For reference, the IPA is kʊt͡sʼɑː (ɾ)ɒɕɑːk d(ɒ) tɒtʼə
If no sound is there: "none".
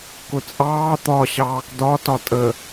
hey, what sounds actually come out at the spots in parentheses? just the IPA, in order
t̪, ɒ

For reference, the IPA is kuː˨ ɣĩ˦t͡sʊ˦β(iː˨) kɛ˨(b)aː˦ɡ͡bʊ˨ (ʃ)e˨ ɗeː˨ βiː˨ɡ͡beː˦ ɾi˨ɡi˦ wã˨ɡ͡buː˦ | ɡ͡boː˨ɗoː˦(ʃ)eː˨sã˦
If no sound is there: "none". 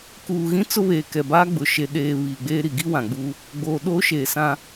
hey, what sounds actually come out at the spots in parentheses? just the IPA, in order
eː˨, b, ʃ, ʃ

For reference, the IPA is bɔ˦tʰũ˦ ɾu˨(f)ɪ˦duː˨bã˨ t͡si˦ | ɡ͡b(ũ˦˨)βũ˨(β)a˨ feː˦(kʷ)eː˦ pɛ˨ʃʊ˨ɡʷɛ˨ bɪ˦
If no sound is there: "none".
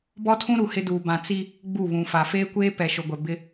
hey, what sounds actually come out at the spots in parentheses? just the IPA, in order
h, u˦˨, f, kʷ

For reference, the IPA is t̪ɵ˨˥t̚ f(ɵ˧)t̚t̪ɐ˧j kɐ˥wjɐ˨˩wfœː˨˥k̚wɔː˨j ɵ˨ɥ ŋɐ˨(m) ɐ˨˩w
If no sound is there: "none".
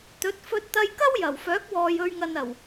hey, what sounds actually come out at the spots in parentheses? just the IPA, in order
ɵ˧, n

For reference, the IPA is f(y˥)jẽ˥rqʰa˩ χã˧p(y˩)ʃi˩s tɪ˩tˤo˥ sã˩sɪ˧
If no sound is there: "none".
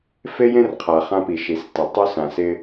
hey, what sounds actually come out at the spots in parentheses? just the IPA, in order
e˥, i˩

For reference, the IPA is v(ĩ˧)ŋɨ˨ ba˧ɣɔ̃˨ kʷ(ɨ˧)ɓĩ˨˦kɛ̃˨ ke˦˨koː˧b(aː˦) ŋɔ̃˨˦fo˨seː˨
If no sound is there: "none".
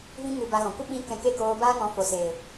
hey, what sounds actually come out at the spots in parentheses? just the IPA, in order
ĩ˧, ɨ˧, aː˦

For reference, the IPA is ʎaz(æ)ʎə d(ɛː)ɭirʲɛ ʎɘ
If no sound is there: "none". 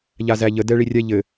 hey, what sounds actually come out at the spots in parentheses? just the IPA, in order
æ, ɛ

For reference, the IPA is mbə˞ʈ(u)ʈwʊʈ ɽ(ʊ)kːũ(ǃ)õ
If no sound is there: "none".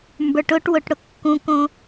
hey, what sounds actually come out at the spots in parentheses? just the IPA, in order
ʊ, ʊ, k

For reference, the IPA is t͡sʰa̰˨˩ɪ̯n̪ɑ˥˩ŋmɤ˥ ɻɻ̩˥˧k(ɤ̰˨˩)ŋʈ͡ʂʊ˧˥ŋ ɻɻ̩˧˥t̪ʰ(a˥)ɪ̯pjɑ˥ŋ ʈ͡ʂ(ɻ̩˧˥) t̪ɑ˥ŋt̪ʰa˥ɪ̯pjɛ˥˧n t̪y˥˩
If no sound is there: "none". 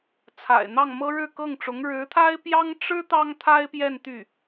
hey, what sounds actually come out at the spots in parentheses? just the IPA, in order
ɤ˥˩, a˥, ɻ̩˥

